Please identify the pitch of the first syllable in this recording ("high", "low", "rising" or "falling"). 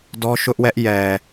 high